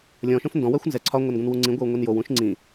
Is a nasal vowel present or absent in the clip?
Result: present